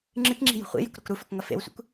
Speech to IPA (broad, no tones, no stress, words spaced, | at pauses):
ŋ͡ǁɨkŋ͡ǁi̤ jṳχʷḭjɵk ɾokɾufɵk ŋɐfḛwsʷḭkʷ